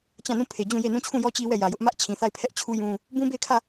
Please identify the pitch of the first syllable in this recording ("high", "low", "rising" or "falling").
falling